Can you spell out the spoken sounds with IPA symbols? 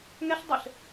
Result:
ŋ ɛ ɬ dˤ ɘ ɬ

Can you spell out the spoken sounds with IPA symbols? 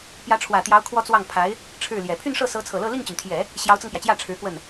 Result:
p j ä˧˥ ʈ͡ʂʰ w ä˨˩ t̪ j ɑ˧˥ ʊ̯ kʰ w ɔ˥ t͡s w ɑ˥˩ ŋ pʰ a˧˥ ɪ̯ | ʈ͡ʂʰ ɻ̩˥˩ l j ɛ˨˩ pʰ y˥˧ n ʂ ɤ˥˩ s ɤ˧˥ t͡sʰ ɤ˨˩ l ɤ˥˧ l i˥˩ ŋ t͡ɕ y˩ n t̪ʰ j ɛ˨˩˦ | ɕ j ɑ˧˥ ʊ̯ t͡s ɤ˧ ŋ p j ä˩ t͡ɕ j ä˥˩ ʈ͡ʂʰ ɻ̩˧˥ k w ə˥˩ n

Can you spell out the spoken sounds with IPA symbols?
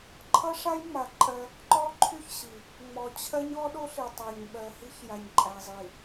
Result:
ǃʰ ʌ˦ ʂ a˦ j ŋ͡m a˨ ǃʼ ɜ˦ | ǃ ɔ˦ ǃʰ y˦ ç ɕ i˨ | ŋ͡m ɔ˨ t͡ɕʰ ɜ˦ ɲ ɔ˦ ɗ o˦ ɬ i˨ tˤ ɜ˨ ɲ ɓ ɜ˨ h i˦ ç j a˨ ɲ ǃʼ æ˨ zˤ i˨

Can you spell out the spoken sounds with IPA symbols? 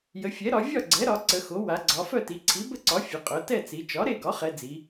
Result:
j ə˩˧ fʲ ɛ˩˥ ɾ ɒ˩˧ vʲ ɒ˥˨ ɡ͡ǀ ɛ˩˥ ɾ ɒ˩˧ ǀ ə˩˧ x o˩˥ w a˩˧ ɡ͡ǀ ɒ˩˧ f œ˥˨ t i˩˧ ǀʰ i˩˥ b ə˥˨ ǀ ɒ˩˥ fʲ ə˩˧ qʼ œ˩˧ t ɛ˥˨ t͡s i˩˧ t͡ʃ ɒ˩˥ ɾ e˥˨ ɡ ɒ˩˥ χ ɛ˩˧ d͡z i˩˧

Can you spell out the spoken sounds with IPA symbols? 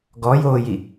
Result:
ɡ ɔ j oː j i

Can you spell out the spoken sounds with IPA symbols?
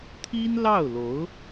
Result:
t̪ʰ i˥ n l ɑ˥˩ ʊ̯ l o˧˥ ʊ̯

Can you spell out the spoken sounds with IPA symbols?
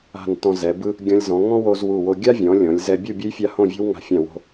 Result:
a̤˧˩ n t ɔ̃˧ z ɛ˩˧ b ɯ˥ | ɡʲ ɔ̃˧ lʲ z ɔ̃˩˧ ŋ ɔ̃˥ w o˧ z w u˧˩ w o˧ ɡʲ a˥ vʲ ɔ̃˩˧ lʲ ɔ̃˩˧ lʲ z ɛ˧ bʲ u˥˧ bʲ ɯ˥ j fʲ a˥˧ h õ˥˧ vʲ o̤˥ w ŋ a̤˧˩ fʲ ã˧˩ w o̤˧

